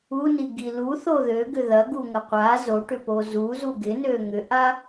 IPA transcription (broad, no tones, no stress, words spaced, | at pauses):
uniɡi luθo ðøɡʏ ðɐɡuŋɐ qʷa zoʈʏpo zuzu ɡɪnø ŋʏʔa